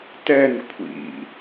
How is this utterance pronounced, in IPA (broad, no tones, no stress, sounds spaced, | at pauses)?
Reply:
t ɛ n kʷʰ ḭ